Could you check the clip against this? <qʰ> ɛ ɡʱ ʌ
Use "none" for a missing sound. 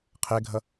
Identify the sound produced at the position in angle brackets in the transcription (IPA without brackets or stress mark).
qʰ